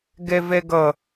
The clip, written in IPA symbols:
ɡ ɛ v ɛ ɡ ʌ

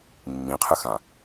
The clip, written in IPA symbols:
mː ĩ qʰ ɨ x ã

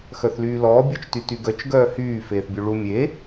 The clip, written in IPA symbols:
x œ θ l yː l ɔː bʲ ɔ t͡ʃ t y t y ɡ œ t͡ʃ ɡ œː h yː f eː θ bʲ u ɭ u mʲ e

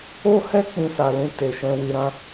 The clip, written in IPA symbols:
o˦ h ɛ˦ k͡p ĩ˧ s a˨ l ũ˧ t e˨ ʃ ɛ̃˧ w i˧ ɾ ã˦

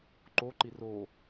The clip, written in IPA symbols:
ǃ o ǃ i r o

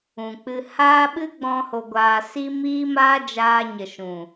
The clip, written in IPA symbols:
ũ˨ k͡p ɨ˧ h aː˦ ɓ ɨ˦ ɡ͡b ɔ̃˧ h o˧ ɡʷ aː˧ s i˦ m iː˦ m aː˦ d͡ʒ aː˧ ɲ ə˨ ʃ ũ˨

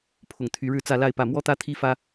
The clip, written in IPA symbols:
pʰ ʊ˥˩ ŋ t̪ʰ y˥ ɻ ɻ̩˥˧ t͡s ä˥˧ l a˥˧ ɪ̯ p ä˥˩ m w ɔ˥ t̪ ä˥ t̪ʰ i˥ f ä˥

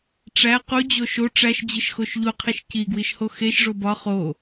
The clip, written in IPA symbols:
ʈ͡ʂ æ q u d͡ʑ o ʃ o ʈ͡ʂ æ ʃ d͡ʑ i ʃ x o ʃ ʎ u qʰ i ʃ c i ɡ w i ʃ h o x e ʃ ʐ o b ɒ χ o

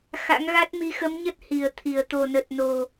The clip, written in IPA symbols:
x a̰˧˥ ŋ ɣ a˦˥ t̚ m i˨˦ x ə˨˦ m ɲ ə˦˥ t̚ h i˨˩ ə̯ t̪ʰ i˨˩ ə̯ t̪ o˨˩ n ə˨˩ t̚ n o˨˩

